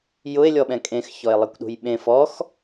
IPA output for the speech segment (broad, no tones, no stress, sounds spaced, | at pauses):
j ʊ e̯ lʲ ɔ ɓ ɛ̃ kʼ ẽ x ç ɔ e̯ lˠ e kʷ ɗ ṳ j ɓ ẽ f ɔ x